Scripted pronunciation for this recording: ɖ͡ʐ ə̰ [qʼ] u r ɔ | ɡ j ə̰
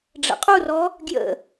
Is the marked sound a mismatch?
no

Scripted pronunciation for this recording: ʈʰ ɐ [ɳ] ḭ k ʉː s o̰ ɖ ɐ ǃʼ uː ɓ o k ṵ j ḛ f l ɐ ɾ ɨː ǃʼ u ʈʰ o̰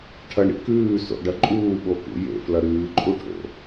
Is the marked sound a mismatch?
no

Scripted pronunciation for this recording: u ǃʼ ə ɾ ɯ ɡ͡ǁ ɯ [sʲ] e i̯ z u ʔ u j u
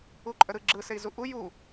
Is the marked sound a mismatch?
yes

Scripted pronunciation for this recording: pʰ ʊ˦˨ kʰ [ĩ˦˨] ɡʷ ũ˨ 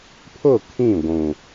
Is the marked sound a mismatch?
no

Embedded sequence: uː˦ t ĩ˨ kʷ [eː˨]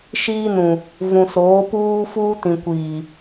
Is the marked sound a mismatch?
yes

